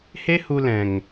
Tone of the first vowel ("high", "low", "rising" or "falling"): high